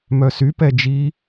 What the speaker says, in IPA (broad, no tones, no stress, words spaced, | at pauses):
mœsypɛ d͡ʒi